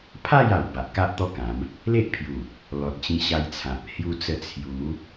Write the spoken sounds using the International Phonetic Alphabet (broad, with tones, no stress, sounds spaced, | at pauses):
pʰ a˥˧ j a˨˩ w b a˨ ʔ k a˦ ʔ t̪ ɔ˦ k ã˨˦ m | l e˦ ʔ pʰ j u˨˩ | l ɔ˨ t̚ t͡ɕ ĩ˧ ɕ a˧ j t͡sʰ ã˨ p̚ h j u˧ t͡s ə˧ t͡sʰ j u˨˦